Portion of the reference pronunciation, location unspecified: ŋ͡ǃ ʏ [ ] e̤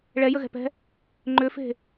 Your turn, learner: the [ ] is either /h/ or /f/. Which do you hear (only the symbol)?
f